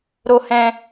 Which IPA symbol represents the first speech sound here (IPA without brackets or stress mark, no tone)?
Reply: ɾ